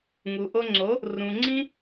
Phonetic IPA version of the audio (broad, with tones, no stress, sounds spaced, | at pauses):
ŋ u˨ ʔ o˧ ŋ͡ǀ o˨˦ | r ũ˨ ŋ͡ǀ ĩ˧